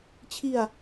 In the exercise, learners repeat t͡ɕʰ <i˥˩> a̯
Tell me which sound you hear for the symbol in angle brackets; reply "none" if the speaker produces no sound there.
i˧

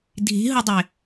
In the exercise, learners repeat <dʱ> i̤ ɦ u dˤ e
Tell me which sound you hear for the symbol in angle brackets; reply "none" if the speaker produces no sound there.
dʱ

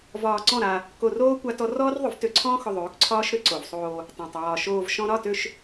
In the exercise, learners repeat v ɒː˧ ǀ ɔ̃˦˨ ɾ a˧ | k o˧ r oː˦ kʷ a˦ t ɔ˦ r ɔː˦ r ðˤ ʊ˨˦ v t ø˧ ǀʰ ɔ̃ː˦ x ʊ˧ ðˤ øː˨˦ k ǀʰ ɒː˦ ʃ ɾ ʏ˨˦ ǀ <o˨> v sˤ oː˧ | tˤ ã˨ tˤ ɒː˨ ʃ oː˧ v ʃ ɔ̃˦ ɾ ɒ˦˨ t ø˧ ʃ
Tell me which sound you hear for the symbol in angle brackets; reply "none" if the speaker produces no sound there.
o˨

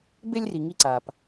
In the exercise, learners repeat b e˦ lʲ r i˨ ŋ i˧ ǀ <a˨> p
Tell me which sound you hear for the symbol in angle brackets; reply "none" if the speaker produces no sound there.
a˨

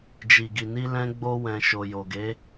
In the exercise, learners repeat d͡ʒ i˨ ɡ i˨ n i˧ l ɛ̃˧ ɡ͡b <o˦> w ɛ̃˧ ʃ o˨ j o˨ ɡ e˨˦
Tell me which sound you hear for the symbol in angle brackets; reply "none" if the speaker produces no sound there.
o˦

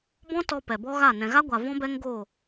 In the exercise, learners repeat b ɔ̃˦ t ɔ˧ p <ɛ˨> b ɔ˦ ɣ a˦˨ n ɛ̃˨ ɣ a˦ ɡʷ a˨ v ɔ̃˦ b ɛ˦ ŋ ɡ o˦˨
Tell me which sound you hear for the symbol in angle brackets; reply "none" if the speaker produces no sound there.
ɛ˨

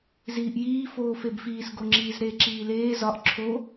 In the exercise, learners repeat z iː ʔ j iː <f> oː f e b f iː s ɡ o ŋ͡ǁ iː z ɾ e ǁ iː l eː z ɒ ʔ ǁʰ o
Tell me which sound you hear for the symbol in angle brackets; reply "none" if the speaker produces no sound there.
f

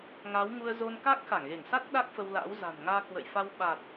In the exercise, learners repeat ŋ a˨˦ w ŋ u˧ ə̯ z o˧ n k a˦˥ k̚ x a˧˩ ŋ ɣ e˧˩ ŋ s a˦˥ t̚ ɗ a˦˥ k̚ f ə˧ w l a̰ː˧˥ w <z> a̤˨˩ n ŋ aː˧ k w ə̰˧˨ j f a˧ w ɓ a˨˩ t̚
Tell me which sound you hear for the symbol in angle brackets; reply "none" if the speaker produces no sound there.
z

